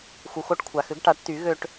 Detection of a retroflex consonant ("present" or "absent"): present